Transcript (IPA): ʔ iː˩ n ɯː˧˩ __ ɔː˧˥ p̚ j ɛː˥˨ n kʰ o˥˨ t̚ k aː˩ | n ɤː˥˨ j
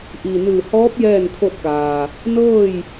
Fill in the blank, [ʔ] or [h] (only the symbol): h